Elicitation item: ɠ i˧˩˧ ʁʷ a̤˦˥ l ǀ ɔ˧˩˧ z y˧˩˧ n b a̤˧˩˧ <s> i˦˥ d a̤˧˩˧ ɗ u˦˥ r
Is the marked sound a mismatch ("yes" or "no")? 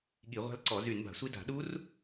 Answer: yes